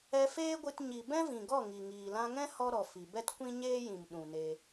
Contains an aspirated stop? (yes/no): no